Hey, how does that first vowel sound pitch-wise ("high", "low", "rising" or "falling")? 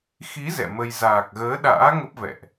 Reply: rising